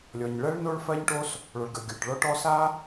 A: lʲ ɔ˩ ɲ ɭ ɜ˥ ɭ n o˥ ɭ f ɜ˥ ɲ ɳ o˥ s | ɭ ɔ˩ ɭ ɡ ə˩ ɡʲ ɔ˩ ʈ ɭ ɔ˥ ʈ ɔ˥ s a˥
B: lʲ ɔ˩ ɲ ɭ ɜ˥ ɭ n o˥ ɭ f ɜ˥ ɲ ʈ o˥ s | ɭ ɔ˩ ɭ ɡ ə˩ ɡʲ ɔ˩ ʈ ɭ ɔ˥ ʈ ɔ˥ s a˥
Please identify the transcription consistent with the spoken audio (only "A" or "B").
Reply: B